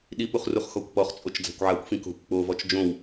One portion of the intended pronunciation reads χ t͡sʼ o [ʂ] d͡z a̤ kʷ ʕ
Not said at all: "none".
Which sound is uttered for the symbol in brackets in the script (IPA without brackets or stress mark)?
t͡ʃ